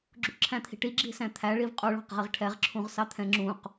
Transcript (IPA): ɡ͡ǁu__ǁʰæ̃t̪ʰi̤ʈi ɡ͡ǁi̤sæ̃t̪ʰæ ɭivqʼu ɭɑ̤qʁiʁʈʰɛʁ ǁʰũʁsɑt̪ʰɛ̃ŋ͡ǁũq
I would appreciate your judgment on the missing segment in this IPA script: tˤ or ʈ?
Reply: ʈ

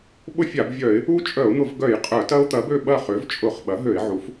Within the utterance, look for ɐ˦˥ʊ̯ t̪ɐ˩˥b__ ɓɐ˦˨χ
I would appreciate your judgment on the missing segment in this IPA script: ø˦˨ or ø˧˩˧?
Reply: ø˦˨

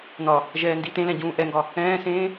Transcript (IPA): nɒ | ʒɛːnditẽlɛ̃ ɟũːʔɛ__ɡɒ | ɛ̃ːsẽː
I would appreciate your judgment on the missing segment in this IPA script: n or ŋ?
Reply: ŋ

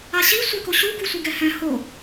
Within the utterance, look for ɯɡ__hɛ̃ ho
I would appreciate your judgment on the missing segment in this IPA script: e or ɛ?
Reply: ɛ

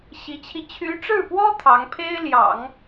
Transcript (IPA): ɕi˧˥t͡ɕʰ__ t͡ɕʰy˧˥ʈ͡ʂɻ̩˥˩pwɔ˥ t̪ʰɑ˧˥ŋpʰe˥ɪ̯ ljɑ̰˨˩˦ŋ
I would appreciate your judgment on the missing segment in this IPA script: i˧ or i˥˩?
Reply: i˧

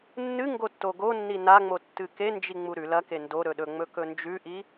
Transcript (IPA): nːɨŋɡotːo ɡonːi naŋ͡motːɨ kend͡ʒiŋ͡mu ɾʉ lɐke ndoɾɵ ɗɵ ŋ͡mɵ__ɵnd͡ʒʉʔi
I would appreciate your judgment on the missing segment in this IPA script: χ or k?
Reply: k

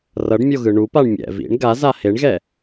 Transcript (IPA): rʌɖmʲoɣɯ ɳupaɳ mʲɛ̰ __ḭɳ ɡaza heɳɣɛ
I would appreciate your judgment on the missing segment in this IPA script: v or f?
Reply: v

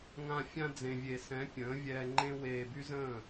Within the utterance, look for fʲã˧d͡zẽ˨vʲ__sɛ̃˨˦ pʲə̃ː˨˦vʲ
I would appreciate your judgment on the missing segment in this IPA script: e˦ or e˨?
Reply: e˨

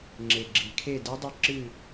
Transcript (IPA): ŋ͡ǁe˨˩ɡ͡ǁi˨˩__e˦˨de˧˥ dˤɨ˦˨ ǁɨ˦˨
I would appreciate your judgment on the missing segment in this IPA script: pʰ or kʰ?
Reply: kʰ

